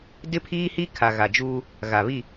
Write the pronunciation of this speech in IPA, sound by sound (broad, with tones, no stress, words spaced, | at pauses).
dɪ˦pʰiː˦hi˦ kʰa˨ɣa˨d͡ʒuː˦ | ɣa˨βi˦˨